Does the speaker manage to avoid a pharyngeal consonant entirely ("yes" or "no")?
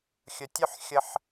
no